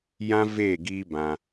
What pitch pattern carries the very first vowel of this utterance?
high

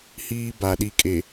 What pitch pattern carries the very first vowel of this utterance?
high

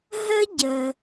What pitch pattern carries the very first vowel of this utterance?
high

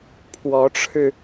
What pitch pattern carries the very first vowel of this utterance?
rising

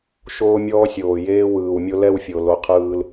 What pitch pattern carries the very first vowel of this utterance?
high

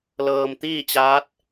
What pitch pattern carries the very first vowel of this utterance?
low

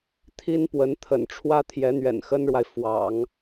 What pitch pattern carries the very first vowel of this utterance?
high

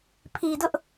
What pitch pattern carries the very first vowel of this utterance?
low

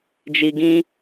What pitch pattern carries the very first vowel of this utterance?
low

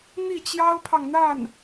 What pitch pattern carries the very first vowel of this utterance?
falling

